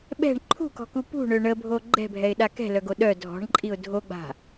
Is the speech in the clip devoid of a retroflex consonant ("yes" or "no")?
no